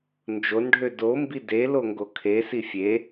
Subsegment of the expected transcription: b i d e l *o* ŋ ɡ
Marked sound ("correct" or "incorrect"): correct